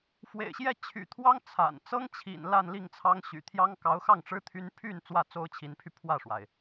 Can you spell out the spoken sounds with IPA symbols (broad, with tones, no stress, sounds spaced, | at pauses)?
f w ḛ˨˩ ɪ̯ ɕ j ɛ˥˩ t͡ɕʰ y̰˨˩ t̪ʰ w ɑ˥ ŋ t͡sʰ a̰˨˩ n t͡s ɤ˥ ŋ t͡ɕʰ ḭ˨˩ n l a˥˧ n l i˥˩ ŋ t͡sʰ ɑ˥ ŋ ɕ y̰˨˩ t̪ʰ j ɑ˥ ŋ k ɑ˧˥ ʊ̯ x ɑ˥˩ ŋ ʈ͡ʂ ɻ̩˥ t̪ʰ y˥ n pʰ y˥˧ n t͡s w ä˥˩ t͡s o˥ ʊ̯ t͡ɕʰ i˧˥ n pʰ y˧ pʰ w ä˥˩ ʂ w a˩ ɪ̯